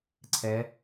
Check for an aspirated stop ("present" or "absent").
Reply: present